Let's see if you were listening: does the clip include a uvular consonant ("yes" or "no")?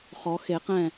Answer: yes